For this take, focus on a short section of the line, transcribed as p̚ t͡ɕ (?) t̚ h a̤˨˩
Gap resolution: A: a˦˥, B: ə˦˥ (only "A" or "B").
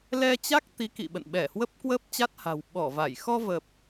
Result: A